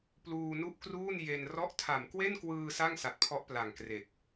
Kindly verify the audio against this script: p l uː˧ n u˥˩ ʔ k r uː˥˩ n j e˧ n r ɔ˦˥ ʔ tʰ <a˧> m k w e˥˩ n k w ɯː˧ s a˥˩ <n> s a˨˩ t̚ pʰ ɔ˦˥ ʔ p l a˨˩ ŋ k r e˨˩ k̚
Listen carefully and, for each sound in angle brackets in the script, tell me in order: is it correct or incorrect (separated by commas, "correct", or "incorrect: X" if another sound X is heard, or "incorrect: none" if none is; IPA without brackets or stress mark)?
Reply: incorrect: a˨˩, incorrect: ŋ